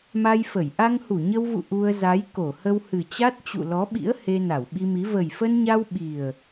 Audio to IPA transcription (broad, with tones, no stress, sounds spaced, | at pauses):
m a˧ j f ə˧˩ j ʔ a˧ ŋ h u˧˩ ɲ ə˧ w v ṵ˧˨ ʔ u˧ ə̯ z a˨˦ j k o˧˩ h ə˧ w h ɨ˨˩ t͡ɕ a˦˥ t̚ t͡ɕ ṵ˧˨ l ɔ˨˦ ɓ ḭ˧˥ ə̯ h e˧ n a˧˩ w ɓ i˧ m i˨˦ v ə˨˩ j f ə˧ n ɲ a˧ w ɓ i˨˩ ə̯